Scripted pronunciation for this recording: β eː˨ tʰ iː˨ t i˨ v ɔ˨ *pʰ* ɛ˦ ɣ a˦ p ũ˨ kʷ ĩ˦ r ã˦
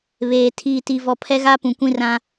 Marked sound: correct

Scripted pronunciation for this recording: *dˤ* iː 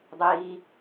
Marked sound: correct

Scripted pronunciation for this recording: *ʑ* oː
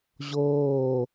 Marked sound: correct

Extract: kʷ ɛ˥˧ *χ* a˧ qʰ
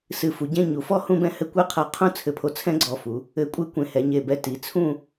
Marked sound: incorrect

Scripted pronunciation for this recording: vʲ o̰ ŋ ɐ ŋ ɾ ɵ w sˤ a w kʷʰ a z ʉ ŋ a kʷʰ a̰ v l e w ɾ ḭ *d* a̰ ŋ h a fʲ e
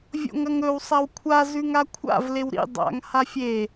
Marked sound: incorrect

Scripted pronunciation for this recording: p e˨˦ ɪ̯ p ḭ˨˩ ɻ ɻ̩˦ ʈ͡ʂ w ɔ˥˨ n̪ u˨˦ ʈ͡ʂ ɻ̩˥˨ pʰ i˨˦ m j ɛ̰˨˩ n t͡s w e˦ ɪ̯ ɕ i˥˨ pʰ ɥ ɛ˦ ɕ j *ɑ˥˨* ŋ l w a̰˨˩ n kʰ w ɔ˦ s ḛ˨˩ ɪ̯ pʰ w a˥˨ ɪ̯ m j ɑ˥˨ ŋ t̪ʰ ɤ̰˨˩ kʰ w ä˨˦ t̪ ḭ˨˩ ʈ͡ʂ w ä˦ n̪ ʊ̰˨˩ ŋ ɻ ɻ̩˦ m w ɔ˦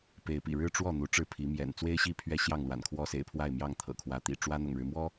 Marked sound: correct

